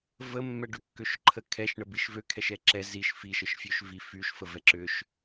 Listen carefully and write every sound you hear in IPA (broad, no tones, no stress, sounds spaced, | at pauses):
v ə mː ɛ ɖ ʏ kː ø ʃ ǃʰ ə kʰ ɛ ʃ ɳ ə b i ʃ v ø kʰ ɛ ʃ ɛ ǁ ɛ z i ʃ f i ʃ ə ʃ fʲ ø ʃ v i f y ʃ f ə v ɛ ǁ ʏ ʃ